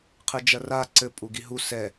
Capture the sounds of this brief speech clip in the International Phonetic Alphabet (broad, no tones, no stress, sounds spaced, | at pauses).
qʰ ɨ d͡ʒ ɐ r a ǀ ɘ pʼ u ɡ i ɦ u s ɛ